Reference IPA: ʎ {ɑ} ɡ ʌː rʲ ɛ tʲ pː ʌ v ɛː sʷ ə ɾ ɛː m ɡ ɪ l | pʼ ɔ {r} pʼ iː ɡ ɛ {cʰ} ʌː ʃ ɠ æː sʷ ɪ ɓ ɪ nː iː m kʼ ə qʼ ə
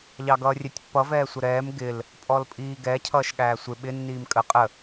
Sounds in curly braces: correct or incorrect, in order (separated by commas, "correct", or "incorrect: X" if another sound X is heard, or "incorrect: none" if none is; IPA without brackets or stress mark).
correct, incorrect: l, correct